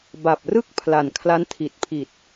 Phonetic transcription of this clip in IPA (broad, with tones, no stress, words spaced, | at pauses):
ba˨˩p̚rɯ˥˩k̚pʰla˨˩n kʰla˦˥ntʰi˨˩t̚pʰi˨˩t̚